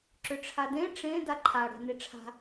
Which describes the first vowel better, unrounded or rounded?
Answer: rounded